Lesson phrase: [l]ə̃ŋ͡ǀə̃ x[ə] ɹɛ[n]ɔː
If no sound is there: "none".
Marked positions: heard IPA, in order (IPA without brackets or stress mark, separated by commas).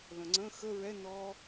l, ə, n